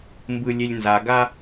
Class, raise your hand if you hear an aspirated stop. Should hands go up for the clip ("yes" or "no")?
no